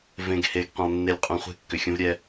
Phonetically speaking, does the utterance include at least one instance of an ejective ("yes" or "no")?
yes